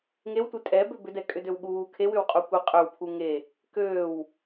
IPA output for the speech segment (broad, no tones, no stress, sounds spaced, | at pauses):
ŋ e w tʷ e tʼ ɛ b ø b ʏ d ɛ kʼ ʏ d ø w ɠ uː kʰ e w ʏ w qʼ u kʷ ɛ qʼ ø w pʰ u ŋ e | k øː w